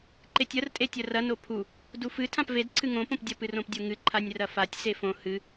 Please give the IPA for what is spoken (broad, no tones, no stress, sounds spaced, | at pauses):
ǃ e tʲ ɐ r tʼ e tʲ ɐ r ɐ n o pʰ u | d u f ɨ tʰ ã p v e d ǀʰ ɨ ŋ õ p õ p dʲ ɐ p ɨ r õ p dʲ o ŋ ɨ ǃʰ a nʲ r ɐ f a tʲ s e f õ h ɨ